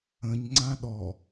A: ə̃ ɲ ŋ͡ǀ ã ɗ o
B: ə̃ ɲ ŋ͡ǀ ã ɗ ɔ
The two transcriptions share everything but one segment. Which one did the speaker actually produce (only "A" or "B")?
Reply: B